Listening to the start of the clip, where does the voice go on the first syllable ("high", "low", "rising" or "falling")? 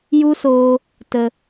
high